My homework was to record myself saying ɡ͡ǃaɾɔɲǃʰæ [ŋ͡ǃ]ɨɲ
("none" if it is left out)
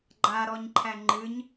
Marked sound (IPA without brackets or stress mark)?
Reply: ŋ͡ǃ